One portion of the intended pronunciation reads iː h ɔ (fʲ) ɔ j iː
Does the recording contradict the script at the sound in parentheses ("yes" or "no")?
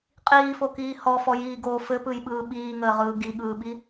yes